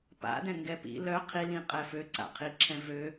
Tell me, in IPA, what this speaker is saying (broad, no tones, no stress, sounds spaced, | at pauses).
p a̰ d ɛ̃ ŋ ɡ ɛ p ḭ l œ qʰ i l ĩ qʼ ɛ f ø ǀ a̰ qʰ i ǁʰ ɛ̃ v ø